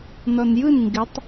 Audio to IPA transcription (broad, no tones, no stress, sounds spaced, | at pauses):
n ɔ n j ɯ n ŋ ɡ ɪ tˤ